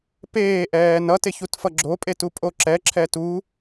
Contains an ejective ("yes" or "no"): yes